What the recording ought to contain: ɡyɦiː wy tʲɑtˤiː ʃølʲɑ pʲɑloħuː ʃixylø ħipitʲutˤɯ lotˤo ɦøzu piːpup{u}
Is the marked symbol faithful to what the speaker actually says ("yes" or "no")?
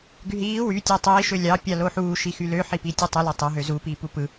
no